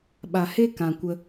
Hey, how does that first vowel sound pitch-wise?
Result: low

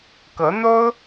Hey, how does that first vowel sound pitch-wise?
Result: rising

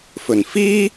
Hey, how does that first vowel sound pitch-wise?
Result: low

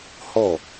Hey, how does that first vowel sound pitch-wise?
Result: falling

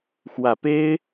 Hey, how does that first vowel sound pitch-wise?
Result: low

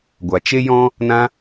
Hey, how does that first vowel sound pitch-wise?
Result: low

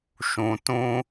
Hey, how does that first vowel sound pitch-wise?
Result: low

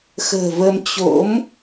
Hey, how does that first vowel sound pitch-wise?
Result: low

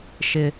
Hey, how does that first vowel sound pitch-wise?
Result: high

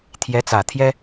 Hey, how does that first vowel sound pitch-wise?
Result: rising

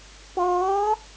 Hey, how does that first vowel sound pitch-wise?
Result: rising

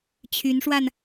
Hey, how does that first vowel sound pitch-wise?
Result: rising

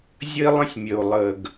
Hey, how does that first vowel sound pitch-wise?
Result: high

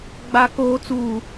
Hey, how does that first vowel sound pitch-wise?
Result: low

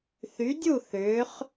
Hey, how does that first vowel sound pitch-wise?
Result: rising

